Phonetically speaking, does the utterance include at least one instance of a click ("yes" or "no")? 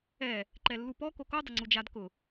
yes